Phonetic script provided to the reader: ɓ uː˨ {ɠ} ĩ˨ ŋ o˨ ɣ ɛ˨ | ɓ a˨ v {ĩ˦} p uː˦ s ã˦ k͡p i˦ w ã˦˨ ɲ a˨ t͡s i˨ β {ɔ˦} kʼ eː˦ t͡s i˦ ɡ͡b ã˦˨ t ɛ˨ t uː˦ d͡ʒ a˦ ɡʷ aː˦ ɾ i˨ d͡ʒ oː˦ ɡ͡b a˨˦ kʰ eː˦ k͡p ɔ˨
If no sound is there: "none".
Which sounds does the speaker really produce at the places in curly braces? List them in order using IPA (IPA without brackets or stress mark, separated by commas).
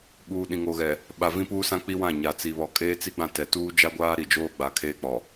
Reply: ɗ, ĩ˦, ɔ˨